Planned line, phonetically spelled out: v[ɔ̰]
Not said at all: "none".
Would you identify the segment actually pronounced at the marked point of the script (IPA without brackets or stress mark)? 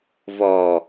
ɔ